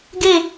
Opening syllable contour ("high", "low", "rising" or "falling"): falling